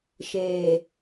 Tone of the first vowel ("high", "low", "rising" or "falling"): low